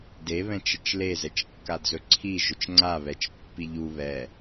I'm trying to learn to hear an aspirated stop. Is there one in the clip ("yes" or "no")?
yes